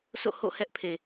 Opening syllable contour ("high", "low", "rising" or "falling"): falling